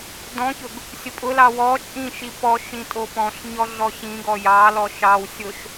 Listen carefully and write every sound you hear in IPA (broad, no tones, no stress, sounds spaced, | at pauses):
d ɔ̃ ç ʊ ɡ | sʲ ʊ pʼ ʊ l ɑ w ɔ t͡ʃʼ ĩ ʃ i p ɔ ʃ ĩ tʼ o p ɔ̃ ɬ ɲ ɔ ɮ ɔ ɕ ĩ ɡ ɔ j ɑ l ɔ ʃ ɑ w sʲ ʊ ʃ